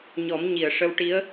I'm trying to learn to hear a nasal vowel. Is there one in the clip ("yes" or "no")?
no